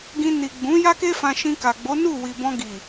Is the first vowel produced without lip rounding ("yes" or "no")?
yes